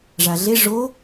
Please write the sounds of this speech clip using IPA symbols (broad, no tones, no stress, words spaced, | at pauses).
ʐaɮe ʐo